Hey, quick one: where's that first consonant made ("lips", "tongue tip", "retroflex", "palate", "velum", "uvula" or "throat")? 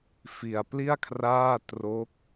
lips